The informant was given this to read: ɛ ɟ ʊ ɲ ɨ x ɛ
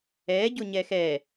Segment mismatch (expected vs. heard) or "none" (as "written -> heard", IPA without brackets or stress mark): ɨ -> ɛ